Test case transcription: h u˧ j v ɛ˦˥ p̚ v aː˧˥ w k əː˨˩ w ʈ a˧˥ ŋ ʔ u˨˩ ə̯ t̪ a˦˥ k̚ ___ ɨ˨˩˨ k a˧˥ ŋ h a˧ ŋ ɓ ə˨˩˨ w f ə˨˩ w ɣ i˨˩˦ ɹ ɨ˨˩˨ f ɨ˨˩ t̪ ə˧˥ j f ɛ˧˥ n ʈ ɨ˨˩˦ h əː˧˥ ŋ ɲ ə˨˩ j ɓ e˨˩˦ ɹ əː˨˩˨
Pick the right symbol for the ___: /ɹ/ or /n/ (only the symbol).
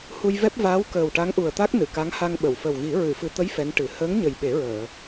n